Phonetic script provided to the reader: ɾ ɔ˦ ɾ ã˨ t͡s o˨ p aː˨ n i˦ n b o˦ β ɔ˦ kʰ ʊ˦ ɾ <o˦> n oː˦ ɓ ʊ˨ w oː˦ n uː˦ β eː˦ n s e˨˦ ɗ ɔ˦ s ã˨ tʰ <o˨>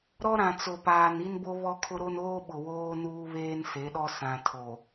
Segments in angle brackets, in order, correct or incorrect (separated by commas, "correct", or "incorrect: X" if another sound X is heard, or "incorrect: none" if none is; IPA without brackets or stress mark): correct, correct